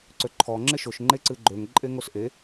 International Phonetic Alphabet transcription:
ǀ ø ǃʰ ɔ ŋ͡ǁ ɪ ʃ o ʃ ŋ͡ǃ e ǀ ɨ ɡ͡ǃ ø ŋ ǃʼ e ŋ o s ʔ e

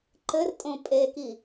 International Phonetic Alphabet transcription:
ǃ ɘ r tʼ õ pʼ e k i

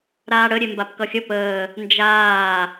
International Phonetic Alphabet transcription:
ɾ aː ɽ ə ɾʲ e m b a p k ʌ xʲ ə p əː | n d͡ʒ aː

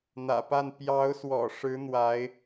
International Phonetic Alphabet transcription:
n̪ ä̰˨˩ p a˥˩ n p j ɑ˧˥ ʊ̯ s w ɔ̰˨˩ ʂ ɻ̩˧˥ n̪ w a˧˥ ɪ̯

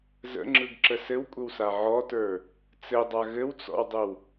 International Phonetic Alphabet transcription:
z ə̰ ŋ͡ǁ ɯ ɡ ǁ ə s ɘ w kʷʼ ə w s a ʕ ɔ t ə˞ | t͡s ɘ dˤ a ɣ ɘ w t͡s ɔ̰ w dˤ ə w

